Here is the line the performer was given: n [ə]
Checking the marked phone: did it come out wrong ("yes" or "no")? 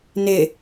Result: yes